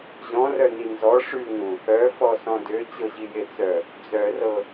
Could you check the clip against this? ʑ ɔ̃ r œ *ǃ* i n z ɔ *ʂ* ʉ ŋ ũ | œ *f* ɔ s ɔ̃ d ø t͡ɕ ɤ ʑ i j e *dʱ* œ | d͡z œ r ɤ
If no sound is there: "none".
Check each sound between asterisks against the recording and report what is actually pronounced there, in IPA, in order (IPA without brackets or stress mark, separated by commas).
n, ʂ, f, t͡s